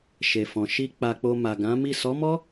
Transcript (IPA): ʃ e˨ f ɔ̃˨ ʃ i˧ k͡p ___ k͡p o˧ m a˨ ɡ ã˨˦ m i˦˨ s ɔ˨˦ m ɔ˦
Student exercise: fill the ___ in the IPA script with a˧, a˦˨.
a˧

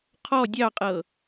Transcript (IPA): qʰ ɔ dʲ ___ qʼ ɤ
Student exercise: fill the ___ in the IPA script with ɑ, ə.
ɑ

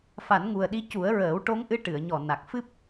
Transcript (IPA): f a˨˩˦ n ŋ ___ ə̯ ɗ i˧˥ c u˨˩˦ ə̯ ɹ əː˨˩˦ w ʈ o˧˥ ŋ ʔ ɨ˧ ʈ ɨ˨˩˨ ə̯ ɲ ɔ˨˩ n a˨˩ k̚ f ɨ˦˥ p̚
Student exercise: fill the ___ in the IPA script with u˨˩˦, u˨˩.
u˨˩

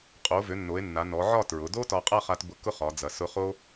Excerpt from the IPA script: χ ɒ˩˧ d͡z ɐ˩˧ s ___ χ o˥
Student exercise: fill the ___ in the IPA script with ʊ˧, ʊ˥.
ʊ˥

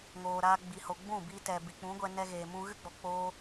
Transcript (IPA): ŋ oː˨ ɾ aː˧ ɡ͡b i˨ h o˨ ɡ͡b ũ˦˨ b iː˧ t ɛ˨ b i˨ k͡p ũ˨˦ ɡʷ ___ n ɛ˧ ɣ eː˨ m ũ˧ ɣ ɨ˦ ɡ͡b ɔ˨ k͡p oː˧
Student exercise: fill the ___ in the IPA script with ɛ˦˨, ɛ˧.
ɛ˧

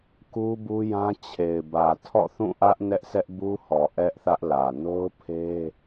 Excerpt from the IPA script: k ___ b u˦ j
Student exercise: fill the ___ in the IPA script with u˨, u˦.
u˦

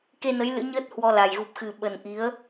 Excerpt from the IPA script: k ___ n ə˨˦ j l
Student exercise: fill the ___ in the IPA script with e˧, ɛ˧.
e˧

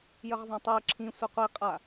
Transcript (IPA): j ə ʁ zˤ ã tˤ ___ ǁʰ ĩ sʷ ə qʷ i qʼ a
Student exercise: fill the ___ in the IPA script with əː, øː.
əː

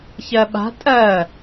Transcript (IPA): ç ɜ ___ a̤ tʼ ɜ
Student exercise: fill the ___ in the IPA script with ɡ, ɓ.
ɓ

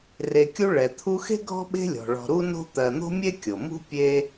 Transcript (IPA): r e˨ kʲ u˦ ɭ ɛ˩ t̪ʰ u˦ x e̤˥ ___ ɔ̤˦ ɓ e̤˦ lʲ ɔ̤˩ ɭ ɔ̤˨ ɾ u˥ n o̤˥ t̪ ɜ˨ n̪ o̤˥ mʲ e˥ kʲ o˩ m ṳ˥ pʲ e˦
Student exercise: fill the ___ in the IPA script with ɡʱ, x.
ɡʱ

